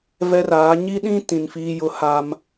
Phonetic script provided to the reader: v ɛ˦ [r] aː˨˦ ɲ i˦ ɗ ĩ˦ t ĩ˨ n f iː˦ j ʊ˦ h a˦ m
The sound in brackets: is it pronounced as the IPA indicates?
yes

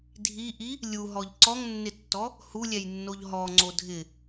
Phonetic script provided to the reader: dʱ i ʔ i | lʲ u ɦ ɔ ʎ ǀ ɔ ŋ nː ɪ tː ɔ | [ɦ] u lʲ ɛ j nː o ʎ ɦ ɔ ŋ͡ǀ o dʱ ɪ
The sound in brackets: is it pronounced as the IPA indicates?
no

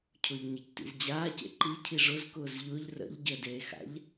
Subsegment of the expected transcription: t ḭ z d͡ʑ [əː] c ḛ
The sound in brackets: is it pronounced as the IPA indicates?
no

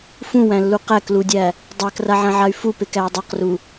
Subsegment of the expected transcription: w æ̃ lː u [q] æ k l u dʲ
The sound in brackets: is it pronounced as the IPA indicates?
yes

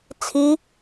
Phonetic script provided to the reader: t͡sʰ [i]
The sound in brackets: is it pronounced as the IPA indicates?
yes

